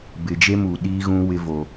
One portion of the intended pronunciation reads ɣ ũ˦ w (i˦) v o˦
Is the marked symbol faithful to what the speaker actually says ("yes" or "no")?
no